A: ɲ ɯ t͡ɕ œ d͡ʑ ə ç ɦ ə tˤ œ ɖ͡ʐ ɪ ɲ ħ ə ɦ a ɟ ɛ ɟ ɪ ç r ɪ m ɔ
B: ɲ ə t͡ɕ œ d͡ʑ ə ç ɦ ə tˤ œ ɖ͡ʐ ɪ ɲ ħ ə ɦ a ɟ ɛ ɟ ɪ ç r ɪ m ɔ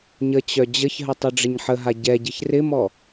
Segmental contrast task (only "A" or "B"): B